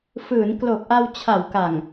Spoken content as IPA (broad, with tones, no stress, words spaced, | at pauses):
fɯː˩˦nklo˨˩k̚ʔa˧w t͡ɕʰa˩˦wka˨˩ŋ